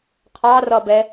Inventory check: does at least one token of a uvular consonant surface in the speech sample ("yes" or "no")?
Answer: yes